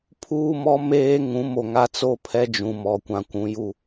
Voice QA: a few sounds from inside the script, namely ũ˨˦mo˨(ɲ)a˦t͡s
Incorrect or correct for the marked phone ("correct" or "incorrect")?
incorrect